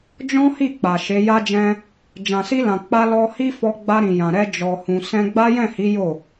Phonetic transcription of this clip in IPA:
d͡ʒɔ̃˦hi˦˨ k͡pa˨ʃe˨˦ ja˦d͡ʒɛ̃˦ | d͡ʒã˨si˧lã˨ k͡pa˧lɔ˧ hi˦fɔ˧ ɡ͡ba˧ɾĩ˨jã˨ɾɛ˧ d͡ʒɔ˨hũ˨ sɛ̃˧ ɡ͡ba˦jɛ̃˦˨hi˨˦ jo˦˨

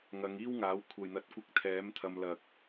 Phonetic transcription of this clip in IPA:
ŋɐ˨˧ŋ iː˥wŋaː˨˥w kʷʰɐ˨jn̪ɐ˨˥t̚kʷɪ˧k̚ t̪ʰɛː˨˥mt̪ʰɐ˧m lɐ˨k̚

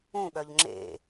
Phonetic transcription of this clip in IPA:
ũɠœʎ ŋ͡ǁḛ

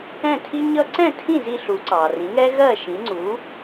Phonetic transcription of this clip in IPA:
ɛ̃˥˩tʰi˥ɲʌ˥ ǀɛ̃˥˩tʰĩ˥˩zi˧ ɬu˩˥ǀɑ˩rĩ˩˥ŋɛ˥ ɣɜ˥˩ʃĩ˩˥ŋ͡ǀu˩˥

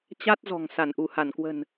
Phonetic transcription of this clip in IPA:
t͡ɕa˦˥t̚zɔ̤˨˩ŋ sa˧˩nʔu˧˩ha˧˩nkwə̤˨˩n

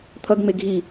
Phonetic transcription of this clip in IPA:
t̪ʰʌɡŋ͡me ɡʱi

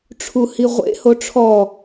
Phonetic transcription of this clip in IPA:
ʈ͡ʂʰuhiʁʷḛ hoʈ͡ʂʰɔ

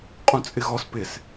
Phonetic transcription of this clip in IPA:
qʼũt͡sʼɪɣɔs pɪs

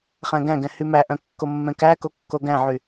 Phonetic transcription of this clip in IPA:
χæ̃ɡæ̃ɡɛ̃ hymæʔœ̃ kːomːɛ̃kæko kːoɡæ̃ʕy

